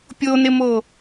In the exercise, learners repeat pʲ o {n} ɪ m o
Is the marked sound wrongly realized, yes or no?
no